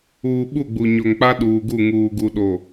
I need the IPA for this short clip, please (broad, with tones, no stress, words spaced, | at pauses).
uː˨ ɓu˦˨ɡ͡bu˨ɲo˨ŋk͡pa˦ ɗuː˨ɡu˦˨ ŋuː˨ɡu˨ɗo˨